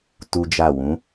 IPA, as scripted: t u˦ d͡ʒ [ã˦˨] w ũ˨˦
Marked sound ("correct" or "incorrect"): incorrect